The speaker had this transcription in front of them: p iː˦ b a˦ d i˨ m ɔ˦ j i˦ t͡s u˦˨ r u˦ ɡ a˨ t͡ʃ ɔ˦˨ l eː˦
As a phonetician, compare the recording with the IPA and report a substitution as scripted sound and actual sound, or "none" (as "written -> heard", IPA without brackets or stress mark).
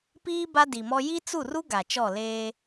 none